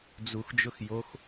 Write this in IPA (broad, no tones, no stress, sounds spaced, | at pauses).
d͡z u x d͡ʒ ʊ x j o x